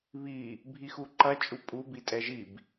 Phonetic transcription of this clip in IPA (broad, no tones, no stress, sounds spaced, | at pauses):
β i | bʱ i x u ǃ ɐ t͡ʃʼ u pʼ u b i tʼ ɛ ʒ i b